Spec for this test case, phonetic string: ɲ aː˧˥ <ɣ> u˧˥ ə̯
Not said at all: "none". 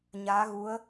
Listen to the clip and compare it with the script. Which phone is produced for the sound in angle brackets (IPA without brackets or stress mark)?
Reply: ɣ